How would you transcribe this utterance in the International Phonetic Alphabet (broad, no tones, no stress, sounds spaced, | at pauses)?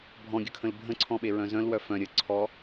bʱ ɔ̃ ɡʲ ə kʰ ə̃ l bʱ ə̃ ǀʰ ɔ̃ ɓ e ɹ œ̃ z œ̃ l w œ f œ̃ ɾʲ ə ǀʰ ɔ